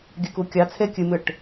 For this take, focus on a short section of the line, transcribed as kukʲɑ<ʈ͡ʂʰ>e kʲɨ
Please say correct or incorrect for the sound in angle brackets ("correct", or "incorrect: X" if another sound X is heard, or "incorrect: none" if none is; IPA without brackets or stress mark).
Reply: incorrect: t͡sʰ